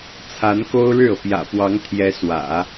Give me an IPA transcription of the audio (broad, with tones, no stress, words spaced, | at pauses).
t͡sʰa˧˥nko˥ʊ̯ɻɻ̩˥˩ɤ˩ pjä̰˨˩pwɑ˧˥ŋt̪ʰjɛ˧˥ swä̰˨˩˦